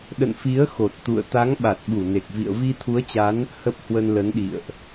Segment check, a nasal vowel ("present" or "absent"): absent